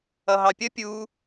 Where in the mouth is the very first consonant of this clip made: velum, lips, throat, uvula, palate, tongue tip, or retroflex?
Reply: throat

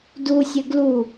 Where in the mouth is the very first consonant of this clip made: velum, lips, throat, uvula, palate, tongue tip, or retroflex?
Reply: tongue tip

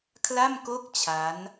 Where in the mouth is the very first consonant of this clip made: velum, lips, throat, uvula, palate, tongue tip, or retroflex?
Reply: velum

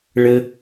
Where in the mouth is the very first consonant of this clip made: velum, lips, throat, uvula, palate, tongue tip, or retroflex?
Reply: retroflex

